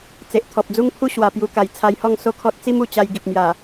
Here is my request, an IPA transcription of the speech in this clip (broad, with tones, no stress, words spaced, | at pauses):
t͡se˨ʔt̪ʰɔ˨p̚d͡zu˦ŋpʰu˦ ɕwa˨˩pju˧ka˨˩j t͡sʰa˧jhɔ˥˧ŋ so˥˧kʰɔ˦t̚ t͡si˦mu˨˩t͡ɕa˧j ɡi˨p̚ mja˨˩